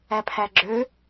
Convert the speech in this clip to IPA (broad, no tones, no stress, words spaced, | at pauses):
æpʰæɡ͡ǁø